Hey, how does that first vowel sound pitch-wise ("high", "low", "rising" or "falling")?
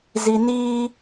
high